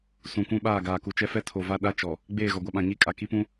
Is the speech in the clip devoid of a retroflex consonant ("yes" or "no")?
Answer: yes